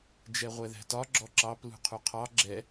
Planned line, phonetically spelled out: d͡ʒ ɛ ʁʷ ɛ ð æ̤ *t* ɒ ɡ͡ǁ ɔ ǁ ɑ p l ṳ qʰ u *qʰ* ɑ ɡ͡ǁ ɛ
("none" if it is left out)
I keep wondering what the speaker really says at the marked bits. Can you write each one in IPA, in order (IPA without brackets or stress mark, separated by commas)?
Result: t, qʰ